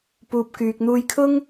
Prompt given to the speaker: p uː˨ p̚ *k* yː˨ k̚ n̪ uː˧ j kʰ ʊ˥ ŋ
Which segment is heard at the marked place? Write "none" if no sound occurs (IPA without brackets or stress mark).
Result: k